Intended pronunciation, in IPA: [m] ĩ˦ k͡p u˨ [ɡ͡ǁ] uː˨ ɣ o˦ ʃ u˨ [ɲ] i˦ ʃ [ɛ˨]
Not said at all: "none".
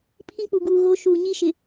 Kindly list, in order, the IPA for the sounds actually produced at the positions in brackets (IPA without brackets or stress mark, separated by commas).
pʰ, ɡ, ɲ, ɪ˨